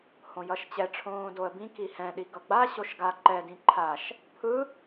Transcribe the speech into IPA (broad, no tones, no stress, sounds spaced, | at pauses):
h õ j ʌ ʃ t͡ɕ ɛ ʈ͡ʂʰ õː d o ə̯ b ĩ k i h ɛ̃ ɗ i ɡ ʌ ɡ͡b a ɕ o ʃ ɡ a ǃ ɛ d ĩ ǃʰ a ʃ | pʰ ɯ